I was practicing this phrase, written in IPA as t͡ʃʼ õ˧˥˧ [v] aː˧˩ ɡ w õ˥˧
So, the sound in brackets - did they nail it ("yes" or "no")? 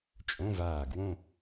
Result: yes